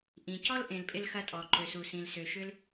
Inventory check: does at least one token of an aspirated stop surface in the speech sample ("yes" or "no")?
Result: no